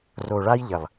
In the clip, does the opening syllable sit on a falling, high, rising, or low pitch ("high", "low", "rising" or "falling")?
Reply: low